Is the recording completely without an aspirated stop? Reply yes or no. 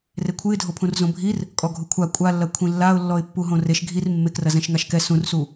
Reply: no